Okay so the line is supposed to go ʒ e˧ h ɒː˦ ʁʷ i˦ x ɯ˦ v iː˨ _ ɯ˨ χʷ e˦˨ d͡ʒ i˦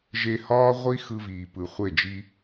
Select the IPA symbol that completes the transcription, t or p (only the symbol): p